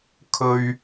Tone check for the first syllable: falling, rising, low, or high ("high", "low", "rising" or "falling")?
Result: low